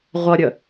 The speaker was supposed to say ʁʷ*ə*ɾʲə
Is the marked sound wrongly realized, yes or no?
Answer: yes